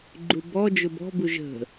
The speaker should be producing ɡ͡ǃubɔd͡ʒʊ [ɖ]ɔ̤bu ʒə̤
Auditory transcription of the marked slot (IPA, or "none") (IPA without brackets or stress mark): b